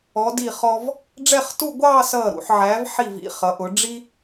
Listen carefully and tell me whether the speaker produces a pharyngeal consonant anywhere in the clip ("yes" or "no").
yes